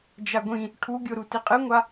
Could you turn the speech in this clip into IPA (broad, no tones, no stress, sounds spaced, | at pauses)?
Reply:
d͡ʒ a ɡʷ ĩ | ʈʰ u ɡʲ o ɾ u t i qʼ ɨ ŋʷ a